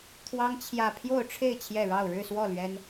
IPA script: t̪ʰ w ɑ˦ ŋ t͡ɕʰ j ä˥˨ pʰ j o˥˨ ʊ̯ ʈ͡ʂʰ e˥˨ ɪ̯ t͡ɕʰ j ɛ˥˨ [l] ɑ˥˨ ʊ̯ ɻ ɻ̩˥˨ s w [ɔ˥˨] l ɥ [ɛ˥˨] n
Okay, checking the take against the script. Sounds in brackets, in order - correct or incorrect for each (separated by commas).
incorrect, correct, incorrect